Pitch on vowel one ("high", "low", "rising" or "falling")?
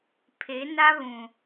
rising